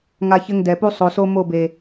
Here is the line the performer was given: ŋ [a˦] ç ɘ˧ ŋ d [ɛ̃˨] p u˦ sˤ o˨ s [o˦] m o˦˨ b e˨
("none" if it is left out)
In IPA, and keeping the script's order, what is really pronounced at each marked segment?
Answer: a˧, ɛ˨, o˧

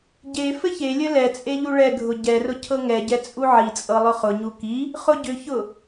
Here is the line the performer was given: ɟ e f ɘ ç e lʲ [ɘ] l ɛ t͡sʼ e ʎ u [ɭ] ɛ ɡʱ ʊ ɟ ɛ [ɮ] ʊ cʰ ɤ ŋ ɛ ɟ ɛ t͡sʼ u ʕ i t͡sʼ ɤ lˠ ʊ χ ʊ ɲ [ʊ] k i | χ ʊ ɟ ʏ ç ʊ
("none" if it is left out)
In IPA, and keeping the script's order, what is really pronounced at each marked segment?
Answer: ɘ, ɭ, r, u

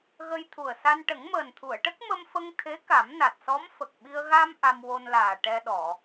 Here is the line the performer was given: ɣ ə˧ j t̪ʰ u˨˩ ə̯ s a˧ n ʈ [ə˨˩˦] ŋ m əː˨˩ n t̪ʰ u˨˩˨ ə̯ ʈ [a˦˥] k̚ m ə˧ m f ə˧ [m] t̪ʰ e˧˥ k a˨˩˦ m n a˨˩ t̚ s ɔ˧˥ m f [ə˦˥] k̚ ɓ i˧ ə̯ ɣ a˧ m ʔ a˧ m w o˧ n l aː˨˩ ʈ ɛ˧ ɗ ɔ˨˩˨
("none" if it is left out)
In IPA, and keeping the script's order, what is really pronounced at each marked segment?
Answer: ə˨˩˦, ə˦˥, ŋ, ə˨˩

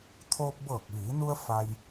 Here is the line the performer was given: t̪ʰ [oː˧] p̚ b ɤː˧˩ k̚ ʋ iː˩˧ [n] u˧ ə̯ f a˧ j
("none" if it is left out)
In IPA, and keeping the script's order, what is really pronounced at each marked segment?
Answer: oː˧, n

